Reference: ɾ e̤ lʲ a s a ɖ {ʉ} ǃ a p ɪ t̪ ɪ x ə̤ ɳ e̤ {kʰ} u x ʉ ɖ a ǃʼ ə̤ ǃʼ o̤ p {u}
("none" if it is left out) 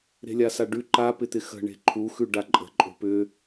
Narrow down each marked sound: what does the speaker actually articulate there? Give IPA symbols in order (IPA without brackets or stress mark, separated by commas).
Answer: ʉ, ǃʰ, ʏ